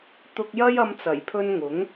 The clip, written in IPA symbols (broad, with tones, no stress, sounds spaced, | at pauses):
t̪ ʊ˧ k̚ j ɐ˥ j ɐ˧ m t͡s ɐ˨˩ j pʰ ɵ˧ n ŋ ʊ˨˥ ŋ